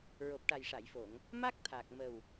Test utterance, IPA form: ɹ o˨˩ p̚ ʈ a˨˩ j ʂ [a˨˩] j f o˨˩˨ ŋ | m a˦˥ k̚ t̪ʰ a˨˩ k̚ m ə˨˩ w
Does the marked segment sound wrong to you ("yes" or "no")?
yes